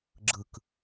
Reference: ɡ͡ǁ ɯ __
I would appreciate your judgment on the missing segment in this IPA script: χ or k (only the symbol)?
k